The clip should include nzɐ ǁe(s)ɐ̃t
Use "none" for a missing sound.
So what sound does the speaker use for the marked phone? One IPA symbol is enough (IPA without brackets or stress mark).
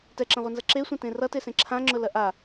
sʷ